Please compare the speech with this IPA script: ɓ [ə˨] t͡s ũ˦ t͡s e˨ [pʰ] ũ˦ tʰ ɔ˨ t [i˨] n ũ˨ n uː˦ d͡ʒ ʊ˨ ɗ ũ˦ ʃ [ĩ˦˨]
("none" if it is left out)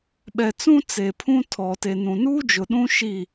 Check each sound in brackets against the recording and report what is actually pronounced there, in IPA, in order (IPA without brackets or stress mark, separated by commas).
ɛ˨, pʰ, e˨, i˦˨